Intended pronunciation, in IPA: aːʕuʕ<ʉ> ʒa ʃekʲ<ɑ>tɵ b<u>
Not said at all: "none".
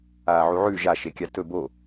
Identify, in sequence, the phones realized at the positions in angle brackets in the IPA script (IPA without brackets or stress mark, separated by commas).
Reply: ʉ, a, o